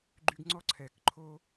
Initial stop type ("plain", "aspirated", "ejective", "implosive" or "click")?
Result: click